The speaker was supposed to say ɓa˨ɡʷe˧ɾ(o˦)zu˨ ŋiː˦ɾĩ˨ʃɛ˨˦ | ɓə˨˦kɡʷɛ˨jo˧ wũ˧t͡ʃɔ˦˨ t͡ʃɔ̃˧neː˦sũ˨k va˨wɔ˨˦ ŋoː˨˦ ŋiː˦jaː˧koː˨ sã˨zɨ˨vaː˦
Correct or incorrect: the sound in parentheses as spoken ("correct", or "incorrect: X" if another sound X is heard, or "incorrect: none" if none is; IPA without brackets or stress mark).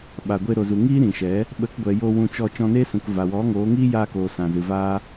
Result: incorrect: o˨